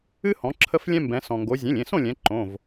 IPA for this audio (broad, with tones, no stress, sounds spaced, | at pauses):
ɨ˦ h ɔ̃˩˧ ǁʰ ə˦ f lʲ ɛ̃˦ m b ɛ̃˩˧ s ɔ̃˩ ŋ ɡ o˩˧ zʲ ẽ˩˧˩ lʲ ẽ˩˧˩ s õ˥˨ lʲ ɛ̃˩˧ ǃ õ˩˧˩ v